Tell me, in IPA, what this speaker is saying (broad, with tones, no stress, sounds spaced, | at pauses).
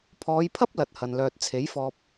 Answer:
pʰ ɔː˨˧ j pʰ ɐ˥ p̚ l ɐ˧ t̚ h ɐ˧ n l œː˧ t̚ t͡sʰ e˨˥ j f ɔː˧ p̚